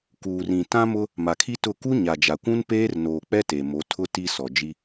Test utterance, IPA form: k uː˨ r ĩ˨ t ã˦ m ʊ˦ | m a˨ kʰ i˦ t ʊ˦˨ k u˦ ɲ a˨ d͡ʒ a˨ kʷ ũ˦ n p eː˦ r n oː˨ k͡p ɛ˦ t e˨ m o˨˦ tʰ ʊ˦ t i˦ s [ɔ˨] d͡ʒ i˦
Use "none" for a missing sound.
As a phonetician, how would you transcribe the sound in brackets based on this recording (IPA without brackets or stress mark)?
ɔ˨